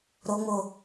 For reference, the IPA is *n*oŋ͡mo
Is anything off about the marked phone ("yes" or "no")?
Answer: yes